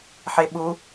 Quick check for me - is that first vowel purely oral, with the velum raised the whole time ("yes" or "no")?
yes